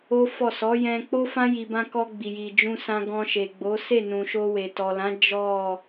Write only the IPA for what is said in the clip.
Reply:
o˦ f ɔ˦˨ s ɔ˨˦ j ɛ̃˧ k͡p o˦ f ã˦ j i˧ b ã˦ k ɔ˧ ɡ͡b i˨ j i˨ d͡ʒ ũ˧ s ã˧ ɡ ɔ̃˧ ʃ e˨ ɡ͡b o˨˦ s e˦˨ n ũ˨ ʃ o˧ w e˨ t ɔ˨ l ã˨˦ d͡ʒ ɔ˦˨

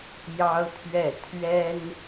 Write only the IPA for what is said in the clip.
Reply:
j ɑ˥ ʊ̯ t̪ʰ ɥ ɛ˥˩ t̪ʰ ɥ ɛ˥ n

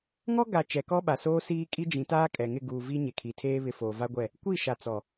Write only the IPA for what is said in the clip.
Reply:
ŋ ɔ˦ ɡ a˨ t͡ʃ ɛ˨ k ɔ˦ ɓ a˨ s oː˦ s iː˦ kʼ i˦ d͡ʒ ĩ˨˦ t aː˦ kʼ ɛ˨ ŋ ɪ˦˨ ɡ uː˨ v i˦ ɲ e˨ kʰ i˨ tʰ eː˦ β ɪ˦ f oː˨ v a˦ ɡʷ ɛ˦˨ | kʷ i˦˨ ʃ a˨ t͡s ɔ˨

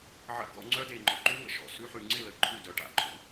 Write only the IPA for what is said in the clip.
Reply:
ʕ ə̰˧ ɡ ɔ̰˧ ŋ͡ǀ œ˦ d e˨ ŋ͡ǃ ɔ˨ ǃ u˦ ŋ ə̰˨ ʃ ɔ̰˨ s ʉ˧ ħ ʉ˨ ŋ͡ǀ ɪ˦˨ l ə˨ ǃʰ ʉ˦˨ d œ˨ ʈ a̰˨ ǃʼ ṵ˨

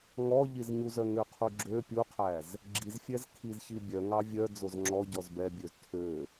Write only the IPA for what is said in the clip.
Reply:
ŋ ɔ ʎ i z ɲ u z œ ŋ ø qʰ u ɡ͡ǁ ø pʲ u qʰ æ z | ɡ͡ǁ i z fʲ ɛ z kʰ i z ç i bʲ œ ŋ ɑ vʲ œ d͡z o z ŋ͡ǁ ɔ ɟ ɔ z b ɛ bʲ ø z tʰ ø

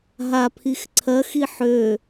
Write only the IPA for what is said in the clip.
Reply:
ɦ a pʰ i x ǀʰ ɜ x i ħ ø

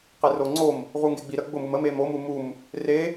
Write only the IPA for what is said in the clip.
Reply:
q e r o ŋ͡ǀ o m | ʁ u ŋ ɡ e ɡ͡b i ɾ ə ɡ͡b ʊ m u m ə m e m o m u m u m | r e

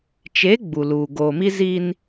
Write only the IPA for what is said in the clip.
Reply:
t͡ʃ e˨˦ ɡ͡b u˨ l uː˨ ɡ oː˨ m i˦ z i˦ n

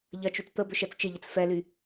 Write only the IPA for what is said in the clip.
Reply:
ʎ ɐ t͡ʃ y t͡s t̪ ə b ʏ ʃ ɛ t͡s t͡ʃ ɪ ʎ ɪ t͡s f ɛ l y

